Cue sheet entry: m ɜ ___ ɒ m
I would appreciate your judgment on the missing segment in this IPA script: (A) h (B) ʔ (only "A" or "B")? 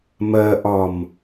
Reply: B